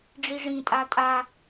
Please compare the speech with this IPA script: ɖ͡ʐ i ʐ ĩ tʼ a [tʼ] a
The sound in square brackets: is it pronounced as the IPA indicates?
yes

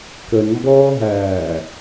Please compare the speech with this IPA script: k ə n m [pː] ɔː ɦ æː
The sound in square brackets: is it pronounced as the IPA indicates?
no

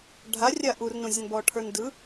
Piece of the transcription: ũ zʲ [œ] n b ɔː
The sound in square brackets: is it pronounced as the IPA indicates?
no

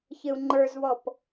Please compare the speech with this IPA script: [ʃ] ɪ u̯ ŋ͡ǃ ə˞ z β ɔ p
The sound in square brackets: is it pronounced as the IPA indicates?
no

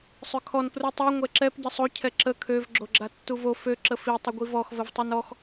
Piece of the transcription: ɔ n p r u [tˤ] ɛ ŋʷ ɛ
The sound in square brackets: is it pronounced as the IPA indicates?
yes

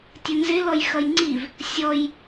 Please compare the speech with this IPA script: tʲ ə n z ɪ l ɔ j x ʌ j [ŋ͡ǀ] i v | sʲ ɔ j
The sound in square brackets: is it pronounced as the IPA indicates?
yes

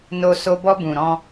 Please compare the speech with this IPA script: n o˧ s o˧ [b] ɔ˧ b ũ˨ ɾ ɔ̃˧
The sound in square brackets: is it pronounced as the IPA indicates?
yes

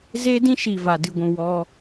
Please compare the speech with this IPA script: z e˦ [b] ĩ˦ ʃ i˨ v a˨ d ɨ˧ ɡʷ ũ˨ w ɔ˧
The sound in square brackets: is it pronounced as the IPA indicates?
no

